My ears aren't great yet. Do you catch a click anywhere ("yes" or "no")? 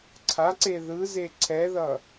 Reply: yes